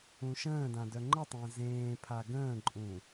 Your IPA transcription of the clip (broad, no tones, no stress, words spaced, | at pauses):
ũʃə̃ːdã dœŋ͡ǃətˤə̃ː zẽːpʰa ɡə̃ːǃʼũ